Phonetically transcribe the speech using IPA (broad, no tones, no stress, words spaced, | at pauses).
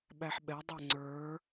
ɓæħɓɛdˤɛ ŋ͡ǀə˞